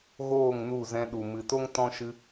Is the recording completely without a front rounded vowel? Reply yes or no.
yes